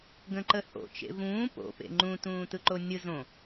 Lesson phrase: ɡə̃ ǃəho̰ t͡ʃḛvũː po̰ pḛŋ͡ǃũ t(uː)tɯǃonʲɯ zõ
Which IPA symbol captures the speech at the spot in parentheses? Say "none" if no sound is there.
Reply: ũː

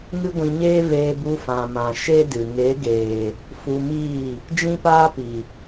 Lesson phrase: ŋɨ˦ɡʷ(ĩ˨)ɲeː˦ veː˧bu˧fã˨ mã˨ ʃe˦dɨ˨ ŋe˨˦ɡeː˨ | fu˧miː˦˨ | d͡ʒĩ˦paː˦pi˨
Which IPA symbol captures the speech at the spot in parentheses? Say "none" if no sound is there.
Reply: ĩ˧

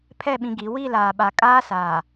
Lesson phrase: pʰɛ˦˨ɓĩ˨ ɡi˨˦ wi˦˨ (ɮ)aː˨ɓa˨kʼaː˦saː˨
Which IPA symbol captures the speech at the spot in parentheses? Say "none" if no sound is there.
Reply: l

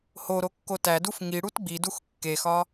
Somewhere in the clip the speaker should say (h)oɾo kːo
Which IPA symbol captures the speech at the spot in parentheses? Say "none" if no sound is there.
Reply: h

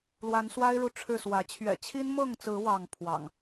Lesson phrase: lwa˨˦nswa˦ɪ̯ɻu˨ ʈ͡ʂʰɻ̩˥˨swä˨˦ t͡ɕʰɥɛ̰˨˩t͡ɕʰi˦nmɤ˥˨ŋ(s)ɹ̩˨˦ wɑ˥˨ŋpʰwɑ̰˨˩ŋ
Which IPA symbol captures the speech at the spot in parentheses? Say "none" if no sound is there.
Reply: t͡s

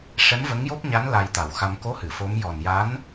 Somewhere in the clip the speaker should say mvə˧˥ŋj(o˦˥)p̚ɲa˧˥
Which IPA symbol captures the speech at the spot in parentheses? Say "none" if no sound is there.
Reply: o˦˥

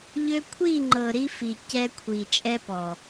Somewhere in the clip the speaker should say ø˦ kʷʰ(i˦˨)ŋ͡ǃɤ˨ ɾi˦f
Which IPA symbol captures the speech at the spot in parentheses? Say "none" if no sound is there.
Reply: i˦˨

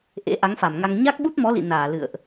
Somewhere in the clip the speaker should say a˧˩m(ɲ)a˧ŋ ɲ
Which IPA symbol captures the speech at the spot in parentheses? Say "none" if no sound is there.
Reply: ŋ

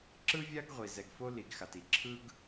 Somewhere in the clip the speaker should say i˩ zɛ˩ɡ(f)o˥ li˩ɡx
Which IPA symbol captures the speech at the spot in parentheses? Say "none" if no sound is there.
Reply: f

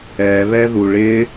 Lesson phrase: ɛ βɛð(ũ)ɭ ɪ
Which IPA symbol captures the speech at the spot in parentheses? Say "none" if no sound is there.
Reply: u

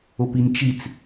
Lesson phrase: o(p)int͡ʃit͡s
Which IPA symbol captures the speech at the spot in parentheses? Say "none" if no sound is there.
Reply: p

